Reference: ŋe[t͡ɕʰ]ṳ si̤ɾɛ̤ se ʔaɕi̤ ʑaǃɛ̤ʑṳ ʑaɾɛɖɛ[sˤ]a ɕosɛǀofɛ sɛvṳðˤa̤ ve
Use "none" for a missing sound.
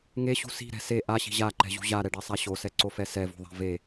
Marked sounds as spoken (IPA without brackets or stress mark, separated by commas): ɕ, sˤ